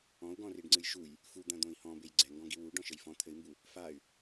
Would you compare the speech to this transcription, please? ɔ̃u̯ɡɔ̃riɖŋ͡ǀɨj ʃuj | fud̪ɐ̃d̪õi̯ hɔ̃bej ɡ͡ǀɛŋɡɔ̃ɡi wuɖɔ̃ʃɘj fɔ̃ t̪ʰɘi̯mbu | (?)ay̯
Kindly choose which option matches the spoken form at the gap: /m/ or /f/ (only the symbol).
f